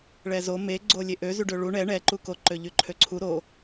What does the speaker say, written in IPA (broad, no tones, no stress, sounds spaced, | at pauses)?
ɭ ɛ z o m e ɡ͡ǀ o lʲ e ʔ ø z y ɖ ø ɭ u ɳ ɛ ɳ ɛ ǃ u k o ǃ ø ʎ y ǃʰ ø ǀʰ u ɾ o